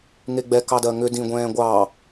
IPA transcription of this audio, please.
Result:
ŋ e ɡ͡b ɛ k ɑ d ɜ ŋ ʏ d ĩ ɡʷ ɛ̃ː ɡʷ ɑ

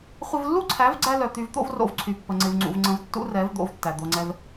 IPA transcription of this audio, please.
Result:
χʷ ɪ˧ v lː u˦ ǀʰ æ˨˦ v ɡ͡ǀ æ˧ l œ˨ t̪ y˧ v t̪ o̰˦ v r o̰˧ v ǀʰ y˨ pː ə˨ ŋ͡ǀ ɪ˧ v ŋ͡ǀ ṵ˧ v ŋ͡ǀ ə̃˧ v tː ṵ˦ r ɛ˨˦ v d̪ o̰˨˦ v tː æ˨ d̪ o˧ ŋ͡ǀ ɛ˦ v

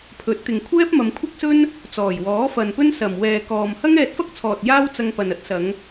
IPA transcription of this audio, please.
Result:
pʰ ɵ˨˥ t̚ t̪ ɪ˨ ŋ kʷʰ ɛː˥ p̚ m ɐ˨˧ m kʷʰ ɐ˥ k̚ s ɵ˥ n | t͡s ɔː˨˩ j w ɔː˨˥ f ɐ˨ n p ɵ˥ n s ɐ˨˩ m w ɛː˨ k ɔː˨ m h ɐ˥ ŋ ɛː˧ t̚ f ɐ˥ k̚ t͡sʰ ɔː˨ t̚ j aː˥ w t͡s ɐ˧ ŋ p ɐ˨ n ɐ˧ t̚ s ɐ˨˧ ŋ

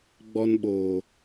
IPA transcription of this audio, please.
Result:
ɡ͡b ɔ˧ n ɓ oː˨

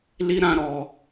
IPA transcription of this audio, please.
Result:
l i˦ ɾ ã˦ ɾ ɔ˧

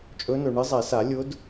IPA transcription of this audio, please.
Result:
t͡ʃʼ ɵ˧˥ n ɵ˨ ɳ ɨ˧˥ zˤ ɛ˨˩˦ s a˨˩˦ lʲ ʊ˧˥ d

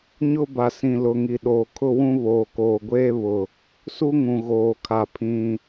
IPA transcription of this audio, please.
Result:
ɲ ʊ˦ b a˨ s ĩ˨ l ʊ˨ ŋ i˨ ɗ oː˨ kʰ ʊ˦ w ũ˦ β oː˨ k oː˨ ɡʷ eː˦ β ʊ˨ | s u˦ ŋ ũ˨ ɣ oː˨ kʰ a˨ pʰ ĩ˨

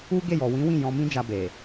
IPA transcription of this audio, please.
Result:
u˦ ɡ e˦˨ j ɔ˨ w ĩ˨˦ w ĩ˦˨ j ɔ̃˧ m ĩ˦ d͡ʒ a˧ b e˨

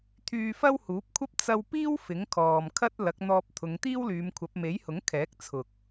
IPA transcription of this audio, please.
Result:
t̪ʰ yː˧ f ɐ˥ w h uː˨˥ p̚ kʷʰ ɐ˥ p̚ t͡s ɐ˧ w p iː˥ w f ɪ˨˥ ŋ kʰ ɔː˨ m kʰ ɐ˥ t̚ l ɐ˨˥ k̚ n̪ ɔː˧ p̚ t̪ʰ ʊ˨˧ ŋ t̪ iː˥ w l yː˨˧ m kʷʰ ɐ˨˥ p̚ m e˨˥ j h ʊ˨˥ ŋ kʰ ɛː˨˥ k̚ t͡sʰ ʊ˨ k̚

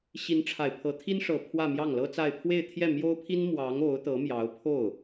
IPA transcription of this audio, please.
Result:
ɕ i˧˥ n ʈ͡ʂʰ a˨˩ ɪ̯ pʰ ɤ˧˥ t̪ʰ i˥ n ʂ ɤ˨˩ pʰ w ä˥˧ m j ɑ˥˩ ŋ l ɤ˥ t͡s a˥˧ ɪ̯ pʰ w e˥˧ ɪ̯ t̪ʰ j ɛ˥˩ m j o˥ ʊ̯ pʰ i˥ n m w ɑ˧˥ ŋ o˧˥ ʊ̯ t̪ ɤ˧˥ m j ɑ˧˥ ʊ̯ pʰ o˥˩ ʊ̯

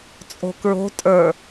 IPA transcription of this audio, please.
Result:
t͡sʼ o̤ k ɹ o̤ tʼ ə˞

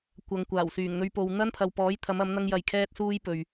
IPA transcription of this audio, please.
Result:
kʷ ɐ˨ ŋ kʷ aː˨˩ w s yː˨˩ ŋ n̪ ɵ˧ ɥ p o˨ w n̪ ɐ˥ n pʰ ɐ˨ w p ɔː˨˥ j t̪ʰ ɐ˨˥ m ɐ˨˥ m n̪ ɐ˥ ŋ j ɐ˧ j kʰ ɛː˥ t̚ s uː˥ j p ɵ˨ ɥ

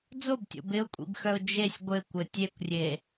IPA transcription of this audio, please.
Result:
d͡z o b tʲ o̰ b ɪ ʊ̯ kʷʼ ḭ b x œ ʊ̯ d͡ʒ e sʲ ɡʷ ɘ kʷ ɘ tʲ e kʷ rʲ e

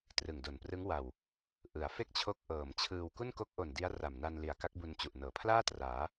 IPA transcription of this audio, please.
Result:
t r ɯ˨˩ ŋ d o˨˩ n p r ɯ˦˥ ŋ w a˨˩ w | ʔ ɯ˩˦ a̯ f e˥˩ k̚ t͡ɕʰ o˦˥ k̚ ʔ ɤː˨˩ m t͡ɕʰ ɯː˧ w k u˥˩ n k o˦˥ k̚ ʔ o˨˩ n d i˦˥ a̯ r a˨˩ m n a˧ n l i˨˩ a̯ k a˦˥ k̚ b u˧ n t͡ɕ u˨˩ ʔ n ɤː˩˦ pʰ l aː˥˩ t r aː˩˦

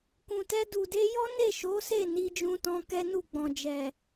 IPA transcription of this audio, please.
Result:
k ũ˨ t ɛ˧ d u˨ d e˧ j ɔ˦ n e˦˨ ʃ o˨˦ s e˦˨ n i˧ d͡ʒ ũ˧ t ɔ̃˧ k ɛ˦ n u˦˨ ɡ͡b ɔ̃˨ d͡ʒ ɛ˨

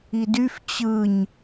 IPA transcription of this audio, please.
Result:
i d y f t͡ɕ ɯ ɲ

